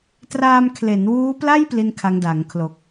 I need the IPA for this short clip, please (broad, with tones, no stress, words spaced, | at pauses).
traː˧mkʰle˩˦nwuː˦˥pla˥˩j pli˥˩nkʰa˦˥ŋda˩˦ŋ kʰlo˨˩k̚